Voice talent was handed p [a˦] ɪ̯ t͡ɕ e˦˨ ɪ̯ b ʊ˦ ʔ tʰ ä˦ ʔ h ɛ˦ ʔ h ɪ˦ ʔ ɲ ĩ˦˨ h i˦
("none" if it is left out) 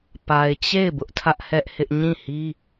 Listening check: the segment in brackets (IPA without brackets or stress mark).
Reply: a˨